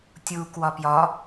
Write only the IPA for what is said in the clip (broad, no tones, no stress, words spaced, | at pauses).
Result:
tʲu kwɒpjɒ